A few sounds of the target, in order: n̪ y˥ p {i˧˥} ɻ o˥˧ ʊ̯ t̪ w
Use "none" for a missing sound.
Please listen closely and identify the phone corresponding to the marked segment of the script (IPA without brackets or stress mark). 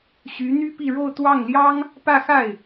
i˥˧